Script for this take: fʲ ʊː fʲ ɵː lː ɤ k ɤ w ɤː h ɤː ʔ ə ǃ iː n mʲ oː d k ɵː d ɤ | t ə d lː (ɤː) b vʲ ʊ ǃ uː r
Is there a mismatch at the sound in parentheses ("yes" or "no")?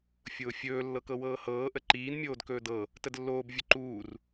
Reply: yes